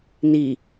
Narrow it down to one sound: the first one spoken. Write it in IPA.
n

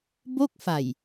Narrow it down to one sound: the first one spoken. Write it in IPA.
b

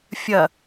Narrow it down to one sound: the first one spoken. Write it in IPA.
fʲ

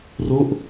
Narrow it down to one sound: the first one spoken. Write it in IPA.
r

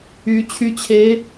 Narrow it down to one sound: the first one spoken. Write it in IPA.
y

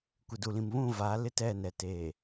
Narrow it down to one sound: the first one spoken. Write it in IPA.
kʷ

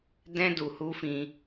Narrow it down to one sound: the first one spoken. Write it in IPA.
d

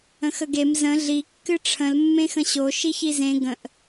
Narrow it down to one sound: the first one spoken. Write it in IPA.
ə̃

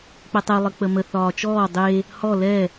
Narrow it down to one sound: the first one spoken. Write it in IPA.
k͡p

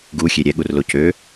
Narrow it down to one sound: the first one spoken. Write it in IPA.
ɡ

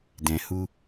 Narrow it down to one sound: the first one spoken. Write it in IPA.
d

